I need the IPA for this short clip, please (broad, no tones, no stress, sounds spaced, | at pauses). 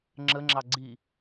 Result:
ŋ͡ǁ ə ŋ͡ǁ ɑ ɡ͡ǀ i